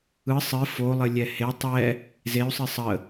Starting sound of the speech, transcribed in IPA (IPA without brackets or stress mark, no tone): ɯ